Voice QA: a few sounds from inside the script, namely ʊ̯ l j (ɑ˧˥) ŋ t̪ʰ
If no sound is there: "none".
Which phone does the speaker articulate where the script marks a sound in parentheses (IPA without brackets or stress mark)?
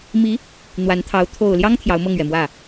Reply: ɑ˥